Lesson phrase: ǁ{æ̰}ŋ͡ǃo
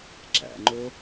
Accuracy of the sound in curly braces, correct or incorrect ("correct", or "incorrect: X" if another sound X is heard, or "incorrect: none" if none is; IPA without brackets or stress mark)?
correct